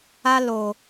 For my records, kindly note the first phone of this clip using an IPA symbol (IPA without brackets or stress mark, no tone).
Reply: a